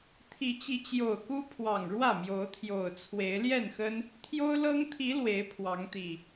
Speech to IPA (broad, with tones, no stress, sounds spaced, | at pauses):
t̪ʰ i˨˦ t͡ɕ i˨˦ t͡ɕ j o˨˩ ʊ̯ k u˦ pʰ w ɑ˨˩ ŋ ɻ w ä˥˨ m j o˨˦ ʊ̯ t̪ʰ j o˨˩ ʊ̯ t͡sʰ w e˨˦ ɪ̯ l j ɛ˥˨ n x ə˦ n | t̪ʰ j o˦ ʊ̯ l ɤ˦ ŋ t̪ʰ i˨˦ l w e˨˦ ɪ̯ pʰ w ɑ˨˦ ŋ t̪ i˨˩